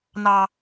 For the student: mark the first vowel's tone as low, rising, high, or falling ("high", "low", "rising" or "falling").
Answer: low